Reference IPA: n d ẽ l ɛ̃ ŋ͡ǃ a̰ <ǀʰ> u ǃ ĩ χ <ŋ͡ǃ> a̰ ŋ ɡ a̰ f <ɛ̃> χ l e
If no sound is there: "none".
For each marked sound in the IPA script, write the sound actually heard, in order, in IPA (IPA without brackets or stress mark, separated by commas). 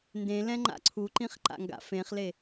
ǀʰ, ǃ, ẽ